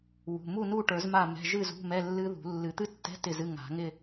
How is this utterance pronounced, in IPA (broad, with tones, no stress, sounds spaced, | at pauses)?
w ṳ˩˧˩ m u˥˨ n u˥˨ ʈ ə˞˨˩˦ z m a˥˨ m ɛ̤˧˥˧ ʒ ɨ˥˨ z ṳ˧˥˧ m ɛ˧˥˧ lː ɨ˦˥ ð ṳ˨˩˦ lː ɨ˨˩˦ t̪ ɨ˦˥ tː ɛ̤˧˥˧ t ɪ˥˨ z ɨ˧˥˧ ŋ a̤˨˩˦ ŋ ɪ˥˨